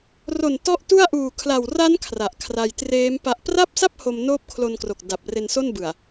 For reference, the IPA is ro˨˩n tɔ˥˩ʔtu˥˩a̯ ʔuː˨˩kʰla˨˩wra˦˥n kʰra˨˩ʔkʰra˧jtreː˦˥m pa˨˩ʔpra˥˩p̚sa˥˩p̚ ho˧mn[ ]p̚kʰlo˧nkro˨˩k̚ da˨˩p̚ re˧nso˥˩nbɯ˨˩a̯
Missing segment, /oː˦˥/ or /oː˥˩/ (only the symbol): oː˦˥